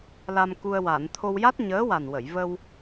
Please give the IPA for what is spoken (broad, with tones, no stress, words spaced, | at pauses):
la˧mku˧ə̯ wa˨˩˨nt̪ʰo˧w ja˦˥t̚ɲəː˧˥wa˨˩nwə˨˩˨j və˧w